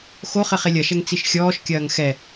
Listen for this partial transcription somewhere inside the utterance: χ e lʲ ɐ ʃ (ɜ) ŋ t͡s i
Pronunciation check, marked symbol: incorrect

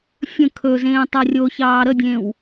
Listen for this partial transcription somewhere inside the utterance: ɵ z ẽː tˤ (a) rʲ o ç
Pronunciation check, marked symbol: correct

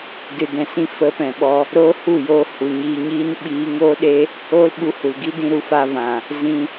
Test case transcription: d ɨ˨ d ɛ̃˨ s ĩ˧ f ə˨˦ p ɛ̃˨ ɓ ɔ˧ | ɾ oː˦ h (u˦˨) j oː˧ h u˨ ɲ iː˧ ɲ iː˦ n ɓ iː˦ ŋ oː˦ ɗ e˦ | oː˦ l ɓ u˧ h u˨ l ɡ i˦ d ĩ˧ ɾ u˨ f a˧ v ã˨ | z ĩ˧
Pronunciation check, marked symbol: correct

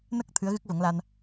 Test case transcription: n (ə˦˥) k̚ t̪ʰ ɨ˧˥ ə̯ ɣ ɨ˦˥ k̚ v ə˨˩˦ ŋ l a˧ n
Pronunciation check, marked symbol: correct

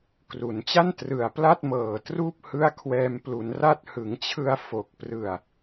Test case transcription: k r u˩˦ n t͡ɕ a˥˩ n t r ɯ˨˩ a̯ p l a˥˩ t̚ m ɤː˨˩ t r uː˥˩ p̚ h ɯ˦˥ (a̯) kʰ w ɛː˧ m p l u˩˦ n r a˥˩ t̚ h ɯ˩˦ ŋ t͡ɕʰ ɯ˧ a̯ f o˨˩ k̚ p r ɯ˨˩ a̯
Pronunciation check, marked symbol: correct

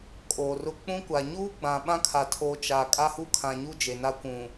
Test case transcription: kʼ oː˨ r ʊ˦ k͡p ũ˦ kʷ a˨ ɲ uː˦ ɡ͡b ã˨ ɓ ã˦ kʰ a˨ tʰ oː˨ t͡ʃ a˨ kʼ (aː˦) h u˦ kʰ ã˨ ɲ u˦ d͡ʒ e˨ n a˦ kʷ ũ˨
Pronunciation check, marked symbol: incorrect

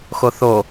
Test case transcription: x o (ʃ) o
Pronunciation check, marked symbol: incorrect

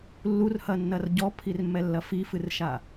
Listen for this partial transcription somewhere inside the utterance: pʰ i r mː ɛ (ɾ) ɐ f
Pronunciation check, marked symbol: incorrect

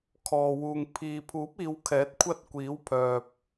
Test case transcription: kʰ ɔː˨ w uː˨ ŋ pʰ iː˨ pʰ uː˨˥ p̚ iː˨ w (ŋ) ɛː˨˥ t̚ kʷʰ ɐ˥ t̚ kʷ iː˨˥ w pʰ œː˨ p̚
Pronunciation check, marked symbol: incorrect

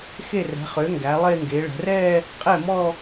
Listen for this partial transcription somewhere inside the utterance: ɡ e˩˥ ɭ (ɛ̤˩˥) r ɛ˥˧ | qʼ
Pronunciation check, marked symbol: correct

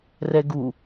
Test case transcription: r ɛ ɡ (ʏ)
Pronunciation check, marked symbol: incorrect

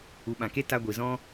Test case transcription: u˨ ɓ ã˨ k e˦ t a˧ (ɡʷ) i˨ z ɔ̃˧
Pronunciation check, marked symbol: correct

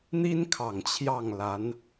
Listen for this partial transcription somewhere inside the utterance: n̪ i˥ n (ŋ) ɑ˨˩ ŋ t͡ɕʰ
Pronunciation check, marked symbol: incorrect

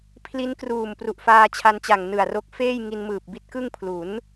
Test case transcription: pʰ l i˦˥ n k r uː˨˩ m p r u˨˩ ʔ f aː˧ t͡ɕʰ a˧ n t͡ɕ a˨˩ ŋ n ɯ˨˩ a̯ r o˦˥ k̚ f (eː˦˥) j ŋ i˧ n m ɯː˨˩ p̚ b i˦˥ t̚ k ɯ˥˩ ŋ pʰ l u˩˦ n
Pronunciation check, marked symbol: incorrect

